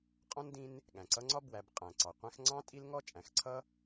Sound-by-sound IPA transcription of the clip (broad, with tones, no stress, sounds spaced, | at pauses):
qʼ ɔ̃˥ n d ĩ˦ n | ɠ æ̃˩ ǀ ʌ˦ ŋ͡ǀ ɒ˥ b w æ˨ b qʼ æ̃˩ ǀ ɑ˩ qʷ æ̃˦ x ŋ͡ǀ ɑ̃˥ tʼ i˥ l ŋ ɔ˥ t͡ʃʼ æ̃˨ x ǀʰ ʌ˥